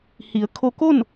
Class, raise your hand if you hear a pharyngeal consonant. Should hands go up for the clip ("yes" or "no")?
no